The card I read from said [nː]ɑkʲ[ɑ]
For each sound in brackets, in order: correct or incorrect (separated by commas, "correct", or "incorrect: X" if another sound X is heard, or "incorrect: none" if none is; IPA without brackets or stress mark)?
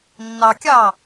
correct, correct